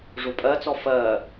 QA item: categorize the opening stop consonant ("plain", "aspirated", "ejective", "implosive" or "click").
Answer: ejective